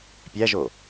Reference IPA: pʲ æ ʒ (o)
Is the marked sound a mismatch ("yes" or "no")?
no